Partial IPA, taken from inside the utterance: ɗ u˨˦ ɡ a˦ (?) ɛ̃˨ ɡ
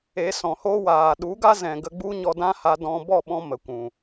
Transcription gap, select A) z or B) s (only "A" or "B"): A